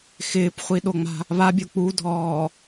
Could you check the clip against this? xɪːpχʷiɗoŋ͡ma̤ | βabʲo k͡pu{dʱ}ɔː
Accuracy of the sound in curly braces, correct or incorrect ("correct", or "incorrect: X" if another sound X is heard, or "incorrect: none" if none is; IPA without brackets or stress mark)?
correct